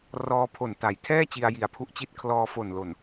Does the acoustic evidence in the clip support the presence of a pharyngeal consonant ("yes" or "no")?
no